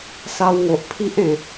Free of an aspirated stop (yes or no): no